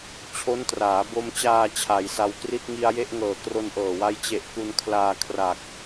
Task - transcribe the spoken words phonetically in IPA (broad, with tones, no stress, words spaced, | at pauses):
t͡ɕʰo˦˥n traː˩˦bo˧mt͡ɕaː˧ t͡ɕʰa˩˦jsa˧wkri˥˩t̚ ŋi˧a̯je˥˩ʔ ŋɤː˨˩kro˧nʔɤː˨˩wa˦˥j t͡ɕe˨˩ʔ ku˧nkʰlaː˧ kʰra˨˩k̚